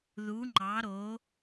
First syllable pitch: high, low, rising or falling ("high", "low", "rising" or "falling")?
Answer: rising